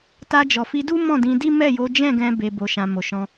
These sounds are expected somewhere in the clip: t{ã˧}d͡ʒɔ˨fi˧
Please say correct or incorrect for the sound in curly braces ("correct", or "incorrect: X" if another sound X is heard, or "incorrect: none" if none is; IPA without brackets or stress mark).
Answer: incorrect: a˧